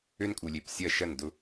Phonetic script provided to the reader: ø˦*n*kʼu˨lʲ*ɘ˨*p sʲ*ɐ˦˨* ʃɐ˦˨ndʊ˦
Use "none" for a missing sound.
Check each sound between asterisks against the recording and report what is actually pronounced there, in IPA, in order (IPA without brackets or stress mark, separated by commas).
n, e˨, ɐ˦˨